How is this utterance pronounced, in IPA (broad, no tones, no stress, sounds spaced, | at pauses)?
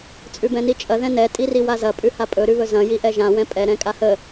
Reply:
t͡sʼ ʉ b ɛ̃ n i t͡ʃʼ ɐ ð ɛ̃ n ɛ tʼ i r i w a z ɐ pʼ ʉ h a pʼ ɵ ɾ ʉ β ɵ z ɐ̃ j i ʔ ɛ ʒ ã w ɛ̃ pʼ ɛ ɾ ɛ̃ kʼ a h ə